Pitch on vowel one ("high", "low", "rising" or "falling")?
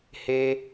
high